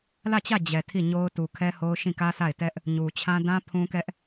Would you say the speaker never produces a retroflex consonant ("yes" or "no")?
yes